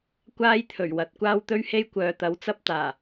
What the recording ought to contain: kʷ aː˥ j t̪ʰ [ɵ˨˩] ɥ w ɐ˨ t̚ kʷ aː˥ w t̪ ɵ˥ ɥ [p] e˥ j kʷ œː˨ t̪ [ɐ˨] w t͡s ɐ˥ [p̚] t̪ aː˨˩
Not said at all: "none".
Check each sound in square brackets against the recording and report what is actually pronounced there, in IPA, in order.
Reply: ɵ˨˩, h, ɐ˨˥, p̚

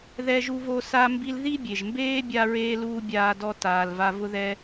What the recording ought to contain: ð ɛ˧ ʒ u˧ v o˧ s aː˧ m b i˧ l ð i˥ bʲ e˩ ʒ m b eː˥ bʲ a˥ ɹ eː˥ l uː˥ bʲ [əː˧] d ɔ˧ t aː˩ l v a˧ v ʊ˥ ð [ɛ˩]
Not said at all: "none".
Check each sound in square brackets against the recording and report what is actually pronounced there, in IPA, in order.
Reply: aː˧, ɛ˥

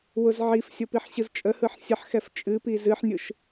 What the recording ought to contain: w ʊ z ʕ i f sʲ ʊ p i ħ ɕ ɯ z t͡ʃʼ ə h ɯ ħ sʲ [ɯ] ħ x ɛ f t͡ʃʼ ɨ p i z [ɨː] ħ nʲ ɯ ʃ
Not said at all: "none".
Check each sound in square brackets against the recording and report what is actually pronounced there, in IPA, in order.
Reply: ə, ɨ

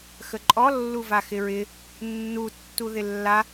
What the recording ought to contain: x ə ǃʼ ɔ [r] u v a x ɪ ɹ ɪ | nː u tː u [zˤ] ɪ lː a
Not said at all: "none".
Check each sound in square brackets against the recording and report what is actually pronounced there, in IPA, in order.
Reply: lː, ð

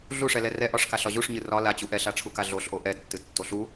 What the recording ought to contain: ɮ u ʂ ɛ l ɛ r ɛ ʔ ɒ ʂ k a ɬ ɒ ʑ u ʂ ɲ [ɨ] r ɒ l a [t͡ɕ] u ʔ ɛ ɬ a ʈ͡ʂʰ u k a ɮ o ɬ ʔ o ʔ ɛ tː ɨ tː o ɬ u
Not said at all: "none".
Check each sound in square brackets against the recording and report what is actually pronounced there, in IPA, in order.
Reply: ɨ, t͡ɕ

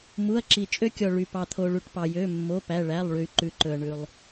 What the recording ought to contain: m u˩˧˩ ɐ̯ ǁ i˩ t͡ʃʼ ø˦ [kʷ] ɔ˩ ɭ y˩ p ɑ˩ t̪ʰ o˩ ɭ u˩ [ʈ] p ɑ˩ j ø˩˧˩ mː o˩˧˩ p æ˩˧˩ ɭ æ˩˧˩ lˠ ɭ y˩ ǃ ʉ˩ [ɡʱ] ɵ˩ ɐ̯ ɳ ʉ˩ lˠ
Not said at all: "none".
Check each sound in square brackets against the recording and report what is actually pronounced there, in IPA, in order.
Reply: kʲ, ʈ, ǃ

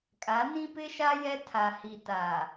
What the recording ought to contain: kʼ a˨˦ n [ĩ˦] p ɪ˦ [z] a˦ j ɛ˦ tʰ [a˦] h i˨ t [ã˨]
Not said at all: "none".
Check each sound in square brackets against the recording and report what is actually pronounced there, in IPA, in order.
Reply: ĩ˦, ʃ, a˨, a˨

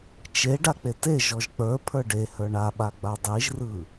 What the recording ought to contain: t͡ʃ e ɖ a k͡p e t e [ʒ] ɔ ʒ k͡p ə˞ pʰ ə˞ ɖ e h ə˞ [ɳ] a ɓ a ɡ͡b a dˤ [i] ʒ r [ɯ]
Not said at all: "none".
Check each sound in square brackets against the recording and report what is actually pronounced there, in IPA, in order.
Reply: ʒ, ɳ, i, ɯ

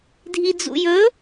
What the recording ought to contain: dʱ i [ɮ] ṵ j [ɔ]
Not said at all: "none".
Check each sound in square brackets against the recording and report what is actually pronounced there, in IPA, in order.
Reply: d͡z, ɵ

